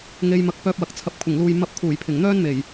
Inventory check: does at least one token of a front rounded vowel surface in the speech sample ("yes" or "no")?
yes